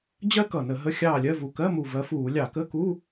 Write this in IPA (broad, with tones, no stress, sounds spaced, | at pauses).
d͡ʑ ɜ˥ k ʌ˨˩ n ə˧˩˧ ɦ ə˧˥˧ xʲ ɑː˦˨ lʲ ɜ˧˥˧ v u˨˩ k ɜ˧˥˧ m u˨˩ v ɜ˨˦ f uː˧˩˧ lʲ ɑ˧˩˧ k ə˧˥˧ k u˧˥˧